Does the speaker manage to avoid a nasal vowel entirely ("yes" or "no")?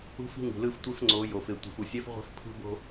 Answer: yes